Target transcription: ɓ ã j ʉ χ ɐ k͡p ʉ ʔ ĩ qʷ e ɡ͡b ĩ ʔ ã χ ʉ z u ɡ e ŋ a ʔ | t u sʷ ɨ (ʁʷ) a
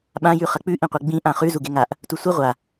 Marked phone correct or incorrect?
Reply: correct